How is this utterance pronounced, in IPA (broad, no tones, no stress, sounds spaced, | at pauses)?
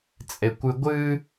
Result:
t͡sʼ e kʷ ɨ ɡʷ ɨ